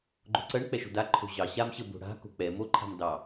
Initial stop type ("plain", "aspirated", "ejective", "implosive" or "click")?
click